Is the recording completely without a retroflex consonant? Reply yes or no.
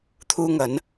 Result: yes